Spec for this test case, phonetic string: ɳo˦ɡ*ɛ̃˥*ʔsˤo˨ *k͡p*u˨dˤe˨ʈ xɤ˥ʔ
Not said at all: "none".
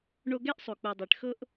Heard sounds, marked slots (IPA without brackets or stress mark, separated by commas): ɛ˥, k͡p